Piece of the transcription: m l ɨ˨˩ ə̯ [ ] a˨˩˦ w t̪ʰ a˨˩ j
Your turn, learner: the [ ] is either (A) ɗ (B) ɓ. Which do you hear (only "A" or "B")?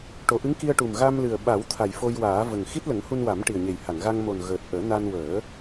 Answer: B